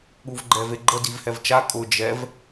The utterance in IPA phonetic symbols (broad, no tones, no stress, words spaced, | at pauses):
ɠuvɡ͡ǃɛveɡ͡ǃə divhɛvt͡ʃa kʼʊ d͡ʒɛv